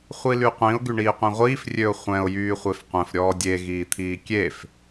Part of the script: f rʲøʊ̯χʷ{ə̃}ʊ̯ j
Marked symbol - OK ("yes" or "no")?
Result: no